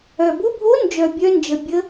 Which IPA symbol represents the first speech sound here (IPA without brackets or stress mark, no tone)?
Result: œ